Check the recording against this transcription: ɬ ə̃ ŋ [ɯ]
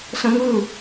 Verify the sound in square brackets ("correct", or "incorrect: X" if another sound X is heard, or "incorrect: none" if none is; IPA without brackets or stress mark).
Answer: correct